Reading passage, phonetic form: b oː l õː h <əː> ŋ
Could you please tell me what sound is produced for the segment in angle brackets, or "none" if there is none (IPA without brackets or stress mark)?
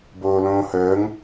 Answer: əː